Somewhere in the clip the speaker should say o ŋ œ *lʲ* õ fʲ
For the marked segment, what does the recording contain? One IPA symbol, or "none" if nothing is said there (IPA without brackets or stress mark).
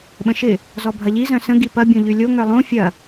lˠ